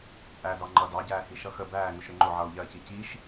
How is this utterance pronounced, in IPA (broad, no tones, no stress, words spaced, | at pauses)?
t͡sʼædɑ ŋ͡ǃʌ dɑɟæːhi ʃʌxə bæː ŋʊʃɾɪŋ͡ǃʊ ʕʌːu̯ʎɜci ciʃ